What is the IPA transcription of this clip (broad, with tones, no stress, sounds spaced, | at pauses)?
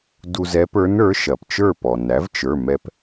d u˧ z ɛ˧˥ p ə˞˧˥ n ə˞˩˥ ʃ ɐ˩ p t͡ʃ ə˞˥˨ p ɔ˩ n æ˩˥ v t͡ʃ ə˞˩˧˩ m ɛ˧ p